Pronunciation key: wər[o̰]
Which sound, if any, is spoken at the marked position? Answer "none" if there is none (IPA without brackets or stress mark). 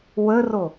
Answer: o